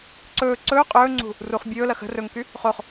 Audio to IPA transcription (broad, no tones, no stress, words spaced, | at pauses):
ǀɵː ǀɵː qʼɵːŋ͡ǀṳ | ruχ bʲɵːlɐ xə̤ rɵŋky | χoχ